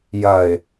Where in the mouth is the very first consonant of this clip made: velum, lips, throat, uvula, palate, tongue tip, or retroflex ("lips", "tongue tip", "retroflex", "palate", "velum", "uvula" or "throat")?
palate